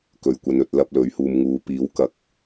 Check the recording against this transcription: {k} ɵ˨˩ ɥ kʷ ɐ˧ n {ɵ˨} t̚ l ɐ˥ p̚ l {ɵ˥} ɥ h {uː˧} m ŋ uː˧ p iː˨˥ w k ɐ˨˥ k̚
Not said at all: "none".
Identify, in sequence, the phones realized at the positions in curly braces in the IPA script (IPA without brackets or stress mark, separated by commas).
k, ɵ˧, ɵ˨˥, uː˧